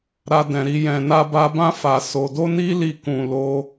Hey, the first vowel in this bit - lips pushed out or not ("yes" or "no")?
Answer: no